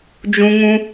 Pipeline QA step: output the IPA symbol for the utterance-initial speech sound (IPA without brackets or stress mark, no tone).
d͡ʒ